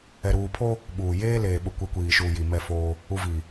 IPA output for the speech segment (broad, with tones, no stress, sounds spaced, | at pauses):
ɛ˨ ɾ uː˨ pʰ o˦ | ɓ uː˨ j eː˦ l eː˨ ɓ ʊ˨˦ kʷ e˨˦ kʷ iː˨ ʃ uː˨ j i˨ m ɛ˦˨ f oː˦ | u˨ v i˨